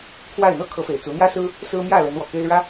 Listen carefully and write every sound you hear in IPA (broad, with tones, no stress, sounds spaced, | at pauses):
kʰ w a˥˩ ɪ̯ n̪ ɤ˥ kʰ ɤ˧˥ f e˨˩ ɪ̯ t͡s u˧˥ n̪ j ä˥ s ɹ̩˥ | s ɹ̩˥ m j ä˥˩ l ə˧˥ n w ɔ˨˩ k e˥ ɪ̯ ɻ ä˥